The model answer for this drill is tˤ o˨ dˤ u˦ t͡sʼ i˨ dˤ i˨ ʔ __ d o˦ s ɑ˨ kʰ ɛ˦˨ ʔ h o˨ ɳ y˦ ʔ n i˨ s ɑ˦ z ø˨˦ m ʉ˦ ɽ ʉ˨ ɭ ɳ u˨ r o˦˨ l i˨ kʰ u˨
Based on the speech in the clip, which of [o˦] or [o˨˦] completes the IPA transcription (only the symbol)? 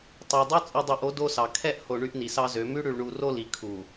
o˨˦